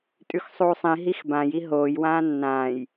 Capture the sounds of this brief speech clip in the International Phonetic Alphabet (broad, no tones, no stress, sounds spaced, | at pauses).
tʼ ʉ x sˤ uː sˤ ĩ ɦ i x b ã j i ɦ oː j w ãː nː ãː j